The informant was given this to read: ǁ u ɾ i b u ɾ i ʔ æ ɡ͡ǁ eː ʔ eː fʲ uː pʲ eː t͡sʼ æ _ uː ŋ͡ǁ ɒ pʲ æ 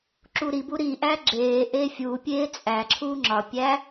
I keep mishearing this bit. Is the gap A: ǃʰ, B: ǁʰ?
B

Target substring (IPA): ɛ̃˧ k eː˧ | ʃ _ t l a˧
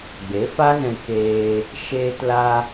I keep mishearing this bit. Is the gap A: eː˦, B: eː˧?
B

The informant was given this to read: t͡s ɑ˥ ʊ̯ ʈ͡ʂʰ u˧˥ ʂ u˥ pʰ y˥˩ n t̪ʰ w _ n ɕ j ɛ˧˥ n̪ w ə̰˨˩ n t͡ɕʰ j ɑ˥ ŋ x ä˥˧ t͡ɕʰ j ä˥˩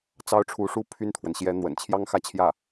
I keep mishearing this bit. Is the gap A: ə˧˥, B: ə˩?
B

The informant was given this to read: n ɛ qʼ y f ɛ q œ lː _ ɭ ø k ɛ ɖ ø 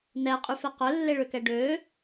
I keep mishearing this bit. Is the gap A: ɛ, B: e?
B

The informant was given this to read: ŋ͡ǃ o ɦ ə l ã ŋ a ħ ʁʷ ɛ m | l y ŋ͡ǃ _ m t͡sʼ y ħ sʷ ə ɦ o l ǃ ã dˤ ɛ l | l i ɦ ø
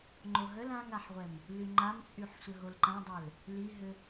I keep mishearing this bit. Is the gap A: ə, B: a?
B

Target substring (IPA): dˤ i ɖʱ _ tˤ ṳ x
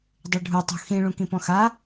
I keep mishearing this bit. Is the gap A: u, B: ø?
A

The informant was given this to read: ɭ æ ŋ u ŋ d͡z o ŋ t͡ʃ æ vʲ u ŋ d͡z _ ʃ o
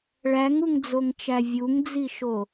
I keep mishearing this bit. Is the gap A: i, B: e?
A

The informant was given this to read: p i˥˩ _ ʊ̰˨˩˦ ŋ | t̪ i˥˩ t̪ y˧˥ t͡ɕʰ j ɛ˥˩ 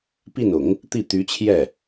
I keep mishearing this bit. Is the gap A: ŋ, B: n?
B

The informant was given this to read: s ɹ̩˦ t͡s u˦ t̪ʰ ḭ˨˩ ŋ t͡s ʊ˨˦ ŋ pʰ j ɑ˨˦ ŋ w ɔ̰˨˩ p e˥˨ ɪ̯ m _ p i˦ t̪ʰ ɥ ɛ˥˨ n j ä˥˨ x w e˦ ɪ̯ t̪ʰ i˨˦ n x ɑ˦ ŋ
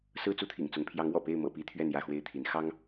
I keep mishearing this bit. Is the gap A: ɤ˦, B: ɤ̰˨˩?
B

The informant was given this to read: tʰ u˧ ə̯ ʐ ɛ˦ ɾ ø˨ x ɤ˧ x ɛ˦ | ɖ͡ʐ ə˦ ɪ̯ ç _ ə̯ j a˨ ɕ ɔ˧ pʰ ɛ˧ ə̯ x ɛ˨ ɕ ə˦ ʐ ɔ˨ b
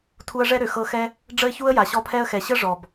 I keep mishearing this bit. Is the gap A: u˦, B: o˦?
A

